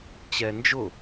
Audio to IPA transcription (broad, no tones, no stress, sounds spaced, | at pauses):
t͡ɕ ɛ n d͡ʒ ʊ